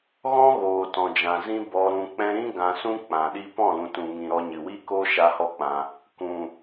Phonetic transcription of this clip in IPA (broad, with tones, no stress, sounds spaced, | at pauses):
ɣ ɔ̃˦ ɣ oː˨ t ɔ̃˨ d͡ʒ ã˨ z ĩ˦ b ɔ˧ ɾ ũ˧ k͡p ɛ̃˦ ɾ ĩ˦ ɡ ã˧ s ũ˦ k͡p ã˨ ɗ i˦ p ɔ̃˦˨ l ũ˨ t ũ˨ ŋ ĩ˨ ɾ ɔ˧ ɲ ɨ˨ w i˦ k oː˦ ʃ a˧ h ɔ˦ k͡p ã˧ | k ũ˨